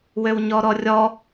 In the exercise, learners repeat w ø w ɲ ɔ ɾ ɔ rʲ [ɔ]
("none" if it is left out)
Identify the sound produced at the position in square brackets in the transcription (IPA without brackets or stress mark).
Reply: ɔ